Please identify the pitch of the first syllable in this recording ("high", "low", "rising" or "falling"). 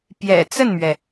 low